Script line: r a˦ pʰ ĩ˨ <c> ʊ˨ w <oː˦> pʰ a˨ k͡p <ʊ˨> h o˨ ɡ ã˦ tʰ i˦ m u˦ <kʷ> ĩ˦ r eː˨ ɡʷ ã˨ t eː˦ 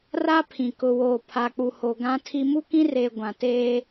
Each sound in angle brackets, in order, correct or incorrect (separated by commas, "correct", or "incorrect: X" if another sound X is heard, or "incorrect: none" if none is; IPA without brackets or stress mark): incorrect: k, incorrect: oː˨, incorrect: u˨, incorrect: k